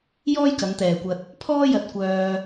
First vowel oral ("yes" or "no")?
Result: yes